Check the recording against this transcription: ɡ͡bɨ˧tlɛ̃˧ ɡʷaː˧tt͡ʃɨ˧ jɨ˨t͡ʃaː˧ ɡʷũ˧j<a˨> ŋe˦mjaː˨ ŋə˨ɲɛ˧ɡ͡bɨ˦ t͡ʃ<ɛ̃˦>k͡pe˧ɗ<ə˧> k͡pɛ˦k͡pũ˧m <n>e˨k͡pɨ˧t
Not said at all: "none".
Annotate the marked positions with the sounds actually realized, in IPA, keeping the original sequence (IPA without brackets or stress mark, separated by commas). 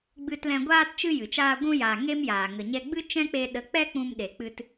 a˨, ɛ̃˦, ə˨˦, ɗ